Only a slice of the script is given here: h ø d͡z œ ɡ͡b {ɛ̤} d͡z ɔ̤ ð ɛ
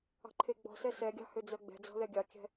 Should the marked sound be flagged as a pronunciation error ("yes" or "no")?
no